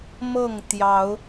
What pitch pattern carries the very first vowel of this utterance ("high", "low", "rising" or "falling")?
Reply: falling